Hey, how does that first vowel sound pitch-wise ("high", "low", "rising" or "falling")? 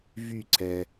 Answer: falling